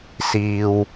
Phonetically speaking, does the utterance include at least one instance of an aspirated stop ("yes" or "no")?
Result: no